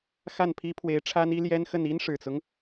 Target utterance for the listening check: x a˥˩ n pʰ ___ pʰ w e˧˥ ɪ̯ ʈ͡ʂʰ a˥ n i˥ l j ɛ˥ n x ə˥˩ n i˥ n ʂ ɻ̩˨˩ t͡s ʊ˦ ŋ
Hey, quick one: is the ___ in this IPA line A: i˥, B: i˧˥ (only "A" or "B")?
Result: A